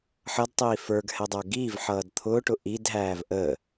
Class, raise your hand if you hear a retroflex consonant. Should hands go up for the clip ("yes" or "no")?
yes